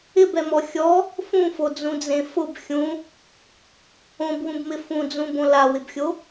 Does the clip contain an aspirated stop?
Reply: no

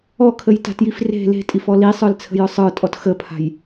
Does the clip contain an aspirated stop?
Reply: yes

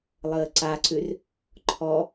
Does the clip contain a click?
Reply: yes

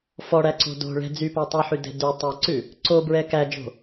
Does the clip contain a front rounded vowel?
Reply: yes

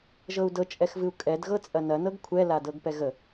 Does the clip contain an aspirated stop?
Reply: yes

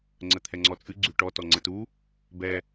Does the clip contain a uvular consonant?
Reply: no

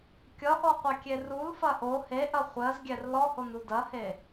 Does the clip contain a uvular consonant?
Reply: yes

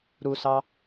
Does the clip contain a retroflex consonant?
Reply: no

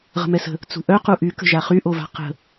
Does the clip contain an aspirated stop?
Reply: no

